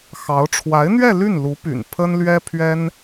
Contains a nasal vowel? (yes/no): no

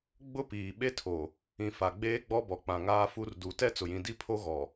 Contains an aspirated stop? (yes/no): yes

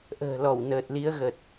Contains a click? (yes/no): no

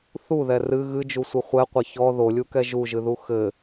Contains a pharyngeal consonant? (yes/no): no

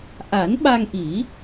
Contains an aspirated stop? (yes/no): no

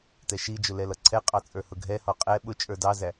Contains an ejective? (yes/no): yes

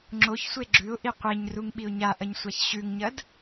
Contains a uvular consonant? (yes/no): yes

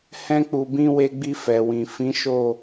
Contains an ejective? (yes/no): no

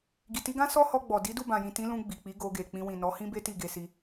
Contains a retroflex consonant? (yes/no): no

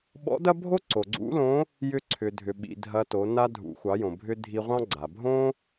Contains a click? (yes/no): yes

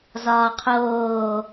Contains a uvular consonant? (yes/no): yes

